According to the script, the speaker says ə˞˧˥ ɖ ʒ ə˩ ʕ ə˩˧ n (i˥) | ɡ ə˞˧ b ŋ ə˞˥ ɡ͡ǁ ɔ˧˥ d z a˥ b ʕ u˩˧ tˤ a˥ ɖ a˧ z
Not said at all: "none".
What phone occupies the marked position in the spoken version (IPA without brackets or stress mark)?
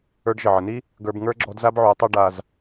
i˥